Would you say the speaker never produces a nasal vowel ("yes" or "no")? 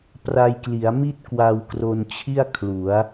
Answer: yes